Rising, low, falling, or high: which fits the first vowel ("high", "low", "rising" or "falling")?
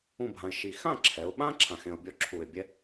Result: falling